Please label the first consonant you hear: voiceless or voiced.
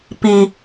voiceless